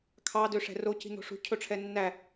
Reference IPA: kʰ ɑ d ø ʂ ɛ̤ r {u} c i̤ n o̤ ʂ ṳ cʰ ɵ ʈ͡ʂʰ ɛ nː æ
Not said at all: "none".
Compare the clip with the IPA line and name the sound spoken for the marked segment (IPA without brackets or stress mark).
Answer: o